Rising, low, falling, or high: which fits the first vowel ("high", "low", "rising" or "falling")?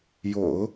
low